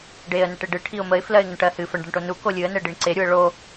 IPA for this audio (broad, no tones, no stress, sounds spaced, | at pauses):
ɖ e ə̯ n ə ʈ e ɖ ɨ ʈʰ i ʊ̯ m ə ɪ̯ f l ɜ ɪ̯ ŋ ə ɳ ʈ ɜ h ɨ f ə ɳ ɖ ɤ ɳ ʈ o n u k o lʲ ɨ ə̯ n ɛ ɖ i ɳ ǀ e ɾʲ u ə̯ ɭ o